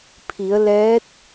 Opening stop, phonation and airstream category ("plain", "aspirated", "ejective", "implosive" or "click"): aspirated